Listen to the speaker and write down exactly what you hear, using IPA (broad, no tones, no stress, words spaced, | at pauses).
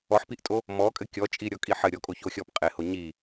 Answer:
ɔħpiʔtʼo | mɔkʼɘ kʲɔt͡ʃʼiɾʲɔkʼi ħɘ ɾʲɔkʼoçoxʲɔp qʼeho ɲi